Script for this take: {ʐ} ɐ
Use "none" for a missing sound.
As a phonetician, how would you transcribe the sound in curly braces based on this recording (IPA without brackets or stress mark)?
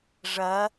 ʐ